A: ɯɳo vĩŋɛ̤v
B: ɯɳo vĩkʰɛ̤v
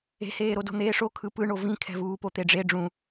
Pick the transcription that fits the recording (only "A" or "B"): B